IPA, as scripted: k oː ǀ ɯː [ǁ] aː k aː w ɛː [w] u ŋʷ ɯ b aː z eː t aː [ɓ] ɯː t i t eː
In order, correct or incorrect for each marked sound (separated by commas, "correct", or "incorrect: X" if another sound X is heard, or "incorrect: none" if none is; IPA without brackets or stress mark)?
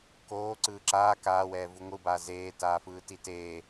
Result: correct, incorrect: v, incorrect: f